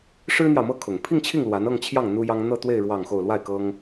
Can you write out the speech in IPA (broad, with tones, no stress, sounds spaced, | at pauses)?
ʂ ɻ̩˥ n̪ j ɑ˨ ʊ̯ m ɤ˥ kʰ ʊ˨˩ ŋ pʰ i˥˧ ŋ t͡ɕʰ i˥˩ ŋ l w a˧˥ n ɤ˥˧ ŋ t͡ɕʰ j ɑ˥˩ ŋ n̪ u˥ j ɑ˥ ŋ n̪ ɤ˥˧ t̪ w e˥˧ ɪ̯ ɻ w ɑ˥˧ ŋ x o˥˧ ʊ̯ l w a˥˩ ɪ̯ k ɤ˥ ŋ